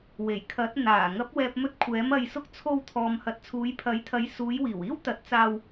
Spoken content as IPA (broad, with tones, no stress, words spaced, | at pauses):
we˨˩jkʰɐ˨˥t̚ n̪aː˨˩ ŋɐ˨˥p̚wɛː˨p̚mɵ˧t̚ kʷʰɛː˨˥mɐ˧jsʊ˥k̚ t͡sʰo˧wt̪ʰɔː˨mhɐ˨t̚ t͡sʰuː˨˧jpʰɐ˨˥jt̪ʰɐ˨˥j suː˨˧jwiː˨˩wiː˥w t̪ɐ˨˥t̚t͡saː˧w